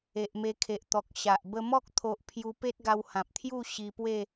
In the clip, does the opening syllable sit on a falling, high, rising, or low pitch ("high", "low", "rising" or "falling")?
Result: low